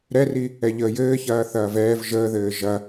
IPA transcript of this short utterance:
ɾɛri | ɛʎəːjɘː çɐːθɐːvɛːv ʒəːðɘː ʒɐ

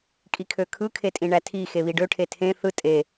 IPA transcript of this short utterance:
kʼikʰøkʰɯ kʰetʼĩɳætʰi xeβiɖø ʈʰetʰẽ θɯ tʼe

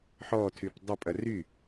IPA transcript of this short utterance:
ħɔtʰyp dˤəpʼɐ ry

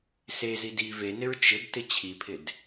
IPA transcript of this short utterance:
sezid i venɪɹ t͡ʃɪd tɪt͡ɕʰipʰɪd

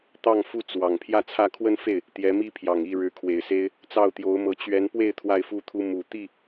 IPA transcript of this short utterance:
t̪ɑ˥˩ŋfu˥ t͡swɑ˨˩ŋ pʰjä˥˧t͡sʰä˥˧ kʰwə˥˧nfe˥˩ɪ̯ | t̪jɛ˧˥mi˥pʰjɑ˨˩ŋ i˥˩ɻɻ̩˧˥kʰwe˨˩ɪ̯se˥ɪ̯ | t͡sɑ˥˩ʊ̯t̪jo˧˥ʊ̯mɤ˧˥ t͡ɕɥɛ˧˥npwe˥˧ɪ̯ t̪ʰwa˥˧ɪ̯fu˥˩t̪ʰu˥ mu˨˩ t̪i˥˩

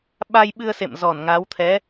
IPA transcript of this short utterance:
ɓa˧jɓɨ˧ə̯sḛ˧˨m zɔ˧˩nŋa˨˦w t̪ʰɛ˨˦

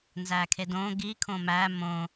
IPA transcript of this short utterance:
nzækʰedõ ɡi kʰõmæ mõ

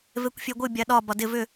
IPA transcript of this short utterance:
vekʷfʲeɡʷɨ bʲaɗɒ bɒdɪ vʏ

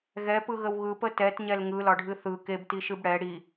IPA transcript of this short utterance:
ɣɛpɯɣəw ɣɯpə tɛtɲɛl ŋɯlɒɖʱɨ θɯ kebtiʃɨb ɽɛ ɽi

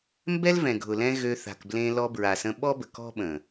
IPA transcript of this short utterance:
mbɛ˦lvɛ̃˨ɡʱʊ˨lɛ̃˧ ɣø˧θa̤˨kblẽ˧ lɔ˧bɹa˨sə̃˧ ɓɔ˦bə˨kɔ̤˦ɓə̃˨

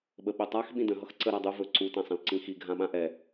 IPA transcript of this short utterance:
ɓəɓɵtˤax ɓĩdə̃ ɦʌxǀə ɾadˤu vɵǀu tãsˤə̃lǀĩxi ɡʱãɓãʔɛ

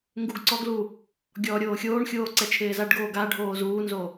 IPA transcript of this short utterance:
ŋɡuɡǀɔɡlu | ɡʲɔːɾʲoːxʲoːɳxʲoː ǀɛt͡ʃʰɪːzaɖɡoː ɡaɖʱoː zuːnzo

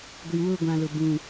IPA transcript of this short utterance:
ɡʷi˨ wʊ˦˨ɡʷã˨ lʊ˨ bũ˦˨

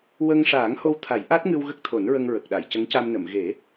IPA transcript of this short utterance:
wə˧ŋ ʂaː˨˩˦ŋho˧w t̪ʰa˨˩˦j ʔa˦˥t̚ŋɨ˧w ɣə˦˥k̚t̪ʰo˨˩˦nɹə˧ŋ ɹə˨˩k̚ɗa˨˩˨j cə˧˥ŋca˧mnə˨˩˨m ɣe˨˩˦

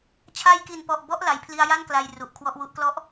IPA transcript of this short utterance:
t͡ɕʰa˧jki˨˩npɔ˨˩ʔ bɔ˦˥ʔ la˨˩jpʰli˧a̯ja˥˩nkla˨˩j ru˨˩ʔkʰwɔ˥˩ʔwu˦˥ʔ klɔ˦˥ʔ

